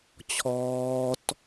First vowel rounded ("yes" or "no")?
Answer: yes